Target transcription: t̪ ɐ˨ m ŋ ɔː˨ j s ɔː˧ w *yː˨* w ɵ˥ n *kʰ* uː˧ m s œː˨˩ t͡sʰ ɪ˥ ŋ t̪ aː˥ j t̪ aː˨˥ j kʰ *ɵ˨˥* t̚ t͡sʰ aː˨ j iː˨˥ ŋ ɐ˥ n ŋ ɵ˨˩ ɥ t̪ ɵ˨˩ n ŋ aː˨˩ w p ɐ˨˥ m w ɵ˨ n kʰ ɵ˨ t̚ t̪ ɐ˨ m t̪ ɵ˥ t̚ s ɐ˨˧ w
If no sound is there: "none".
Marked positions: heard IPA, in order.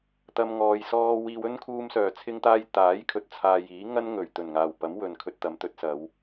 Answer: iː˨, kʰ, ɵ˨

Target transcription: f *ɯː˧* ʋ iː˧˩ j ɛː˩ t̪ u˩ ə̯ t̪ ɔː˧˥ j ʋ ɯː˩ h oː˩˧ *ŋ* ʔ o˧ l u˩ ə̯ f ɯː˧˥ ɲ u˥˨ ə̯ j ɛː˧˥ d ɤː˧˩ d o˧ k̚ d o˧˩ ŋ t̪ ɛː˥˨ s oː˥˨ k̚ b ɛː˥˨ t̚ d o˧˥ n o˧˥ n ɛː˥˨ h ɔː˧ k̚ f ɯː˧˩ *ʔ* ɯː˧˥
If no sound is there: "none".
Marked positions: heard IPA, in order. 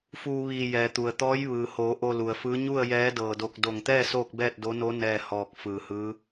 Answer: uː˧, none, h

